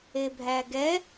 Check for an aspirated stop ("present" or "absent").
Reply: absent